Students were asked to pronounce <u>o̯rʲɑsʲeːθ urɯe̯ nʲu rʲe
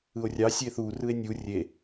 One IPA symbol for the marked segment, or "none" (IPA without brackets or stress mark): ɯ